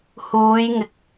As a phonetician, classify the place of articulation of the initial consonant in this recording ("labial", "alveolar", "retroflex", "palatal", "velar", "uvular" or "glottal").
glottal